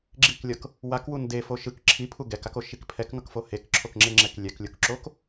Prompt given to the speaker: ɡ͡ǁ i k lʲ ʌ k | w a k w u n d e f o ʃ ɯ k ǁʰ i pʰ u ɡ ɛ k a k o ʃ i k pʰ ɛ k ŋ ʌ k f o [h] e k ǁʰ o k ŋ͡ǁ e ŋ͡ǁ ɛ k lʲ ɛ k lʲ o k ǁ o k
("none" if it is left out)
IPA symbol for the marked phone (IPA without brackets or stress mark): h